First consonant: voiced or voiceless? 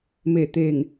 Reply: voiced